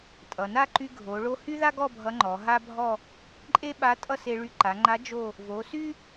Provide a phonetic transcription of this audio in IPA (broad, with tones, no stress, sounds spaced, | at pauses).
tʼ ʌ˩ n a˥˧ ǃ y˧ ɡʱ o˩˧ ɭ o˥ h y˥ ð a˥ ɡ ɔ˥˧ bʱ ʌ˧˥ ŋ͡ǃ ɔ˩˧ ɦ a˥ bʱ ɔ˥˧ | ǃʼ e˥ ɓ a˧˥ tʼ ʌ˥˧ s e˧ ɭ y˧˥ ǃ a˩˧ ŋ͡ǃ a˧˥ d͡ʒ o˥˧ | v o˩˧ s y˥